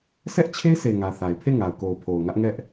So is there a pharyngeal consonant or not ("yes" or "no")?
no